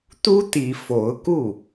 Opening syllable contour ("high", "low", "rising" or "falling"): high